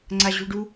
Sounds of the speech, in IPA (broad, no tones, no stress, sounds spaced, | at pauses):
ŋ͡ǀ a ʑ ṳ ɭ ɖ u